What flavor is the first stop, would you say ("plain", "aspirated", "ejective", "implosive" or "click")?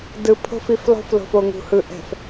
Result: plain